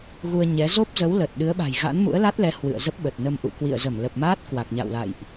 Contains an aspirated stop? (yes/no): no